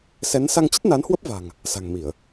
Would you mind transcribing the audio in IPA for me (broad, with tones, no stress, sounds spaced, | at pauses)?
s ɛ˨˦ n s a˧ ŋ t͡ɕ ə˦˥ t̚ n a˨˦ n h w ə˦˥ p̚ v a̤˨˩ ŋ | s a̤˨˩ ŋ m i˧˩˨ ə̯